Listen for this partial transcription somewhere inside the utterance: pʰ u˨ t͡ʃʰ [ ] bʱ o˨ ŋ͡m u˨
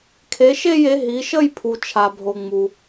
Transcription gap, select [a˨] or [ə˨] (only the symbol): a˨